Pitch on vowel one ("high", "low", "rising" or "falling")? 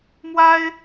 high